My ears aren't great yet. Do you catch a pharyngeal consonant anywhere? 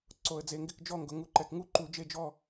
no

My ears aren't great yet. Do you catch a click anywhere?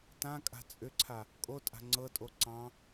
yes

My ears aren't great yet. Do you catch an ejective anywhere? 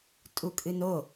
yes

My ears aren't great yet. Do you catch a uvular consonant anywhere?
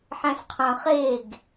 yes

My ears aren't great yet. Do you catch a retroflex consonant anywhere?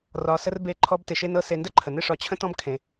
yes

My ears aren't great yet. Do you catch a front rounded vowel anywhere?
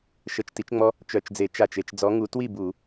yes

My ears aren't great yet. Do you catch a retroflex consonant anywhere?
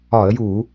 no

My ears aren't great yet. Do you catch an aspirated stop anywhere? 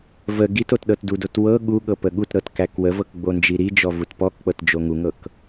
no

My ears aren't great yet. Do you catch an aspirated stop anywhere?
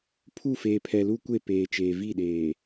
yes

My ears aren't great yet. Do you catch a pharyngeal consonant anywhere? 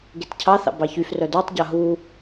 no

